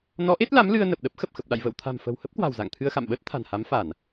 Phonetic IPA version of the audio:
n ɔ˨˦ ʔ e˦˥ t̚ l a˨˦ m l ɨ˧ ə̯ n ə˨˩ p̚ ɗ ə˦˥ p̚ x ə˨˩ p̚ x ə˨˩ p̚ ɗ a̰˧˨ j v ə̰ː˧˨ w t̪ʰ a̤˨˩ m f ə̤˨˩ w h ə˦˥ p̚ k w a̤˨˩ w z a̰˧˨ ŋ t̪ʰ ɨ˧ ə̯ x a̰˧˨ m ɓ əː˦˥ t̚ t̪ʰ a̤˨˩ n h a˨˦ m f a˧˩˨ n

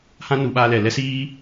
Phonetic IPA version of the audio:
h ã˦ n u˨˦ ɓ aː˧ l ɛ˨ l ɛ˦ s iː˦

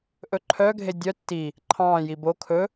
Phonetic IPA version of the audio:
ʔ ɵ ǃʰ œ ɡʱ e dʲ œ tː i | ǃʰ ɑ̃ː j i b o kʰ ɵ

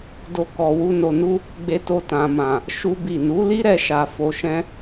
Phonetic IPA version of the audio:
d o˦ k ɔ˧ w u˦ n o˧ n u˦ | ɡ͡b e˧ t o˧ t ã˨ m ã˨ | ʃ u˦ b i˦˨ n u˨˦ l i˦ ɾ ɛ˧ ʃ a˧ f o˧ ʃ ɛ̃˦

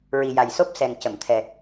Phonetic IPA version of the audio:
ɹ i˨˩ j a˨˩ j s o˦˥ p̚ s ɛ˨˩ ŋ c ə˨˩˨ m t̪ʰ ɛ˨˩

